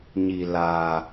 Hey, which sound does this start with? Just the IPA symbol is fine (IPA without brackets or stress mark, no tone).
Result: ɲ